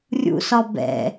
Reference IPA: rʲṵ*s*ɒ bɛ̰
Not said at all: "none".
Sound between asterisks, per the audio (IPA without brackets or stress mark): s